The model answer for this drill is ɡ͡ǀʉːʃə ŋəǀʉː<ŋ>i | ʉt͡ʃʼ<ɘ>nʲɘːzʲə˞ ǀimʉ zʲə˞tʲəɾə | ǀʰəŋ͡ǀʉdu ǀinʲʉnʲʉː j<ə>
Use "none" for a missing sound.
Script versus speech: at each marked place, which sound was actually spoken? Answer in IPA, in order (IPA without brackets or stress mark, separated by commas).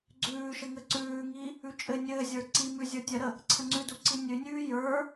ŋ, ɘ, ə˞